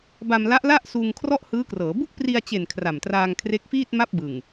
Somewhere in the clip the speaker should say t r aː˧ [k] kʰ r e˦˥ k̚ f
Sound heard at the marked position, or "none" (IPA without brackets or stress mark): ŋ